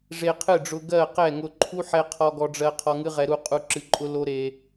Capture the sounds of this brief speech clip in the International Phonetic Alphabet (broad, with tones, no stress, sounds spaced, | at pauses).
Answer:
ʐ e˧ qʰ ɨ˦˨ ɖ͡ʐ ʊ˧ ɡ ɜ˦˨ q ɛ˦˨ ŋ ʊ˧ ǃʰ u˦ ħ ɛ˧ qʰ ɔ˦ ɡ ɔ˦ ɖ͡ʐ ɜ˦ qʰ ɔ˧ ŋ ɨ˦ ʁ ɛ˧ ɾ u˦ qʼ u˦ ǁ ɨ˧ ǃʼ ʊ˦ l o˦ ɾ e˧